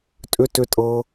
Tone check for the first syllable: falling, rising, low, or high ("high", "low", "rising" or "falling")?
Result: high